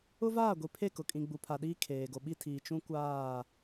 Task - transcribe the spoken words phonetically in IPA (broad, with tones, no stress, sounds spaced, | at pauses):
ʊ˦ v aː˦˨ ɡʷ i˨ pʰ e˦˨ k ʊ˨ kʼ ĩ˨ ɡ͡b u˨ pʰ a˨ ɗ iː˦ kʰ eː˨ ɡ o˨ ɓ i˦ tʰ iː˨ t͡ʃ ũ˦ kʷ aː˦˨